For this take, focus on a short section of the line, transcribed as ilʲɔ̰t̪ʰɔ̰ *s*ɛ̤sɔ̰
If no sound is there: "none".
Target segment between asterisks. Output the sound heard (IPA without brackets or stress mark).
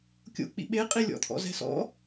z